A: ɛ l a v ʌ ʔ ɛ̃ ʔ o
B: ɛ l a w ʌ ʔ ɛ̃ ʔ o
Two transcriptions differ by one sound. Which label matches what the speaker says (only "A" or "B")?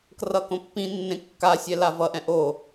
A